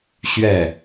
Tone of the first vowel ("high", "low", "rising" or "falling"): falling